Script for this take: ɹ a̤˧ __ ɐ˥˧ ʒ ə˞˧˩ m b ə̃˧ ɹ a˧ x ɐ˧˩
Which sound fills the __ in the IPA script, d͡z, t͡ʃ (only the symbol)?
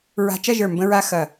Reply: t͡ʃ